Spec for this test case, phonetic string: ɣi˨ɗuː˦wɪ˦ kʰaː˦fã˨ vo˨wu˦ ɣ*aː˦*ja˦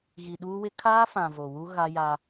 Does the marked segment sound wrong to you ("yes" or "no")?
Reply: yes